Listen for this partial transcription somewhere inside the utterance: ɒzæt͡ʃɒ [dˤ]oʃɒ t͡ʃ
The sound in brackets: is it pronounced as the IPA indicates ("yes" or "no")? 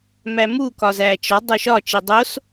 yes